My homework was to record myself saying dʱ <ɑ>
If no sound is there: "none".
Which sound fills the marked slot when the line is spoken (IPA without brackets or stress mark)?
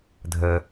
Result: ə